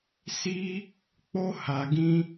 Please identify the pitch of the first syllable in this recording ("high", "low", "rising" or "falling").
high